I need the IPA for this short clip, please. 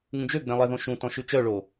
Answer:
ŋ ũ d͡ʒ ø ɡ͡b ẽ lˠ ɛ ð õ ʃ ũ t ɔ̃ ʃ ʉ t͡ʃ œ ɭ o

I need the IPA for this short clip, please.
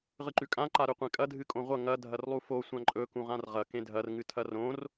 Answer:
ʁ ɨ ǃ ʉ kʼ ã ǃ a ɾ ɵ qʷ ẽ kʼ ɐ dʱ ɨ kʼ õ ʁʷ ɐ ŋ ɐ dʱ ɐ r lˠ u f o sʷ ã ǃʼ ɵ k ũ ʁ ã r ʁ ɐ k ẽ dʱ ɐ r ŋ ɨ tʰ ɐ r õ r

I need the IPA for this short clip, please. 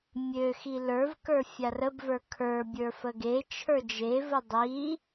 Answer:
mʲ ø x i l ə˞ v k ə˞ fʲ a r ə b v ə˞ kʰ ə˞ bʲ ə˞ f ə ɡ e t͡ʃʰ ə˞ d͡ʒ e v ə dˤ i

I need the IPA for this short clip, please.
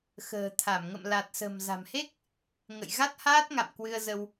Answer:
x ə̤ː˨˩ t̪ʰ a˧˩ m ŋ ə̰˧˨ m l a˨˩ t̚ s ə̤˨˩ m z a̤˨˩ m h e˦˥ k̚ | ŋ ə̰˧˨ j ɣ a˦˥ t̚ h aː˦˥ t̚ ŋ a̰˧˨ m k w ɨ˧ ə̯ z ə˧ w

